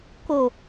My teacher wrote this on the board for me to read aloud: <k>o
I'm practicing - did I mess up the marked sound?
no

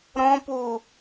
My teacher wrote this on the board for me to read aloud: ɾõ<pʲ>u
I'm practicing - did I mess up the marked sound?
yes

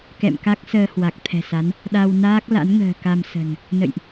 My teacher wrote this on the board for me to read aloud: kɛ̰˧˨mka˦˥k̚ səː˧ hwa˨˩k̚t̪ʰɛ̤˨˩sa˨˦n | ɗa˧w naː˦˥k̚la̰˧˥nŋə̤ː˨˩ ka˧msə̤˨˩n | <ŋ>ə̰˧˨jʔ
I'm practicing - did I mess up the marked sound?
yes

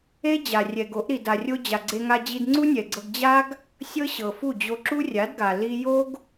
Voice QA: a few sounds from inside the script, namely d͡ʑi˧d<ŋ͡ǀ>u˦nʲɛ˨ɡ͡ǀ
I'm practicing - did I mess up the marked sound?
no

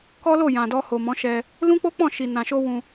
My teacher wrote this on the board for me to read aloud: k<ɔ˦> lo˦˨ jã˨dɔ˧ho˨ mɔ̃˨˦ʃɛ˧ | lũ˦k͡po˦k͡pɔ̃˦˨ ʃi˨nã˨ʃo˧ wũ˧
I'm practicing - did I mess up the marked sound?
no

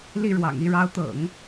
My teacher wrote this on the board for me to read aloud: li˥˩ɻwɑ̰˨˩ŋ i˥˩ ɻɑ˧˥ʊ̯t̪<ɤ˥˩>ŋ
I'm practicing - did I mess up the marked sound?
yes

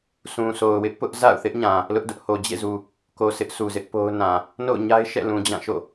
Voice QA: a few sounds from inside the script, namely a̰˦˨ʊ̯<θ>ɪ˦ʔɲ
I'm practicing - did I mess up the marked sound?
no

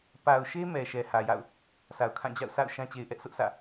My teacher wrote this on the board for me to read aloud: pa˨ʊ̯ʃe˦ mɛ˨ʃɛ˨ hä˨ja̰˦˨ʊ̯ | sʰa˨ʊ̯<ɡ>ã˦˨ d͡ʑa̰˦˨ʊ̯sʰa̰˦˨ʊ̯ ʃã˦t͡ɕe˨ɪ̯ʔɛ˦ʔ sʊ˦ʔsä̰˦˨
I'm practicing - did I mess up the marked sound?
yes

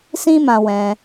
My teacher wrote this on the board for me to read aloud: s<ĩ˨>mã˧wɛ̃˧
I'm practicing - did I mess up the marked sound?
yes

